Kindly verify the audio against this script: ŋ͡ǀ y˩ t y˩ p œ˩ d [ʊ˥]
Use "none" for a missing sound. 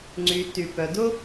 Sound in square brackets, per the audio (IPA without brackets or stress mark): ʊ˥